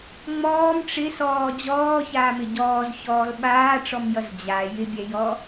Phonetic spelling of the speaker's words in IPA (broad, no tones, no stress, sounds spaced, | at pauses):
ŋ͡m ɔː m ʈ͡ʂ ɪ s ɔː d͡ʑ ɔː ç aː m ɪ ɟ ɔː z ç ɔː l ɓ aː ʈ͡ʂ ɔ m j ʌ z d͡ʑ a j ɪ bʲ ɛ j ɔ